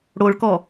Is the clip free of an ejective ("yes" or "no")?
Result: yes